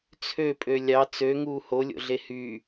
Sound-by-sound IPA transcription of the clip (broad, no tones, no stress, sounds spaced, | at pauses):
t͡sʰ ø pʼ ø lʲ ɑ t͡s ø ŋ uː h o lʲ o̰ ɮ e h y